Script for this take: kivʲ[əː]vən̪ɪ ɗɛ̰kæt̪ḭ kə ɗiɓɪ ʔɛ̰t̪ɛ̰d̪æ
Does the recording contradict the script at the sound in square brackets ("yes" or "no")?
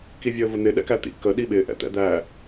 no